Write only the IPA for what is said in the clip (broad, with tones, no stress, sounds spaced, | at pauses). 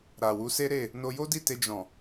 ɾ a˨ w u˨˦ s e˦ ɾ e˦˨ | n o˧ j o˦ d i˦˨ t e˧ d͡ʒ ɔ̃˨